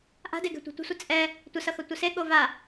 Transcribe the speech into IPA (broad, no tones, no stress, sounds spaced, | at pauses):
ʔ a̤ d e ɡ ɛ̤ tʷ e̤ tʷ ə̤ sʷ ə t͡sʼ ɛ | tʷ ə s ʌ x ʌ tʷ ə s e ɠ o v a